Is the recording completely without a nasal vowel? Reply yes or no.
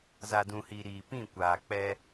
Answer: no